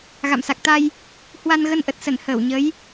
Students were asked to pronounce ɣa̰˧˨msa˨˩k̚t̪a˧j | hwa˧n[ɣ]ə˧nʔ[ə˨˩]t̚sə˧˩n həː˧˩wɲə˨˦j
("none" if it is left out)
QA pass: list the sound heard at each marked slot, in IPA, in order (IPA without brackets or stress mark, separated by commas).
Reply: ɣ, ə˨˩